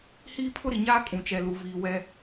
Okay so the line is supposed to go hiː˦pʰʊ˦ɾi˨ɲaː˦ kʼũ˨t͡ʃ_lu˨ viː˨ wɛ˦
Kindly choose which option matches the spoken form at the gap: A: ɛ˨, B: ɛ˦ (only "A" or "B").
A